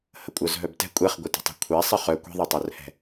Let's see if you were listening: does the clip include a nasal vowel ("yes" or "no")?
no